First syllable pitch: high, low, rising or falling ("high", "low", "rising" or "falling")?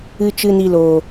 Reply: high